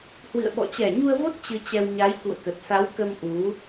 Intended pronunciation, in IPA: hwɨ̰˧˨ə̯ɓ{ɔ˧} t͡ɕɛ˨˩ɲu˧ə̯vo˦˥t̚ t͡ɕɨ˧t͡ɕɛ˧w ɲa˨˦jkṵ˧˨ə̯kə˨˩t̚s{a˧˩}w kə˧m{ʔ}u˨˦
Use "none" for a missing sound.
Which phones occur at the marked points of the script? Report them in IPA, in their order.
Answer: ɔ̰˧˨, a˨˦, ʔ

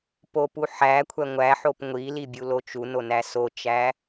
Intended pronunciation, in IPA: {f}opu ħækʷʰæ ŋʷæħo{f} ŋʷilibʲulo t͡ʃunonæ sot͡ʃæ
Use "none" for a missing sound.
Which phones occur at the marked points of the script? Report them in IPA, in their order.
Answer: p, p

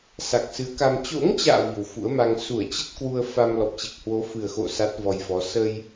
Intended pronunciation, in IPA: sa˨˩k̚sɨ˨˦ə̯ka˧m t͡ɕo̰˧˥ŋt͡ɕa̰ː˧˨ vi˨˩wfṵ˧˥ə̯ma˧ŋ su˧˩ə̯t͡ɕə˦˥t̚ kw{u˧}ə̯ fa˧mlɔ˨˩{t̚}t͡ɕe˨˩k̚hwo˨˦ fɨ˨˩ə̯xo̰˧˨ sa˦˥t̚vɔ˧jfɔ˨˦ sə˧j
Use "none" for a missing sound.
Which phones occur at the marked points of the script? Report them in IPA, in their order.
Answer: u˧, p̚

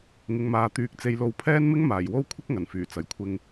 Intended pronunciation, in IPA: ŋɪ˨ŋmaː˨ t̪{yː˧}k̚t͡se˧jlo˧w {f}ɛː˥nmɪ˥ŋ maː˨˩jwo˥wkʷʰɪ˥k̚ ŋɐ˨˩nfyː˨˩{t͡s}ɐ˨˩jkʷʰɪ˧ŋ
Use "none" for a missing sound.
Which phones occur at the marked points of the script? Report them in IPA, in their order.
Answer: yː˧, pʰ, t͡s

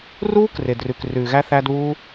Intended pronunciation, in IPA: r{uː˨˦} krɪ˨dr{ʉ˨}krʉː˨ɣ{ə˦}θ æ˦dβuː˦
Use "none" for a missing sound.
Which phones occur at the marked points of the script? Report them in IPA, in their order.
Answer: uː˦, ʉ˨, æ˦

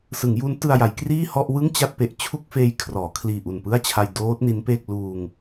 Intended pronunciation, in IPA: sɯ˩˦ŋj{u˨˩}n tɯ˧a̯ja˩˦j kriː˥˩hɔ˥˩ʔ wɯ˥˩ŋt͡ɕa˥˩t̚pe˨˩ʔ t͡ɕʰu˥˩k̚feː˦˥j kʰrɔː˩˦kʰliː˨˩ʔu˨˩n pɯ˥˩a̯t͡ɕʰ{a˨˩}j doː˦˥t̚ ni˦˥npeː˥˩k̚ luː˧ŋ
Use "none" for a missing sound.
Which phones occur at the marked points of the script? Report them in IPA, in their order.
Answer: u˦˥, a˧

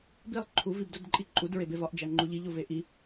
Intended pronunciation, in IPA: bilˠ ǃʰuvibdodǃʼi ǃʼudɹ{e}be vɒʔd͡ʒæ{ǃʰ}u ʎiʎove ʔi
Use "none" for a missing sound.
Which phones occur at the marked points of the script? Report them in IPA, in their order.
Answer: e, ŋ͡ǃ

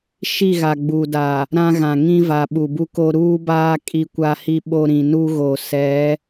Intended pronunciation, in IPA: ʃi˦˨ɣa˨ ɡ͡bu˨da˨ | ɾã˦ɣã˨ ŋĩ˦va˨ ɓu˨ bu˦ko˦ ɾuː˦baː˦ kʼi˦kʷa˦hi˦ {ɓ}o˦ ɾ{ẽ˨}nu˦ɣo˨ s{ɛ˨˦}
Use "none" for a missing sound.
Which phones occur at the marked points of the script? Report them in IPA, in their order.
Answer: ɓ, ĩ˨, ɛ˨˦

